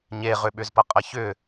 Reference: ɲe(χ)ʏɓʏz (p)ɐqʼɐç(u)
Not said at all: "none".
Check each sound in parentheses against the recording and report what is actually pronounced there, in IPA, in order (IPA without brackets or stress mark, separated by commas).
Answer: ʁ, p, ʏ